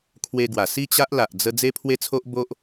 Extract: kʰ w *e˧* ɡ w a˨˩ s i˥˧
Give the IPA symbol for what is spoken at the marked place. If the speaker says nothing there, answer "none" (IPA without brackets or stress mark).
e˧